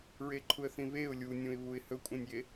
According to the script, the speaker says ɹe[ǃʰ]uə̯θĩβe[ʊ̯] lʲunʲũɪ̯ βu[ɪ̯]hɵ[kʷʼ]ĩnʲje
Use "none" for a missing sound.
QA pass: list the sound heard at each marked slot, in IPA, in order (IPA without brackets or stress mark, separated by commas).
ǃʰ, ʊ̯, ɪ̯, kʷʼ